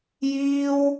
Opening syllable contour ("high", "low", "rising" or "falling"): high